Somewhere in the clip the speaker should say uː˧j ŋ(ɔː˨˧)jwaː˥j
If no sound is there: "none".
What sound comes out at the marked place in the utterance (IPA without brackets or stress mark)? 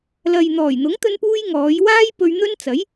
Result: ɔː˨˧